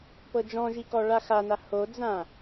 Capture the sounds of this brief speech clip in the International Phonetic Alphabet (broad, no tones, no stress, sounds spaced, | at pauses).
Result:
p ɤ d͡ʒ ɔ̃ ʒ i k ɔ ɭ a x a n a h o d͡z ã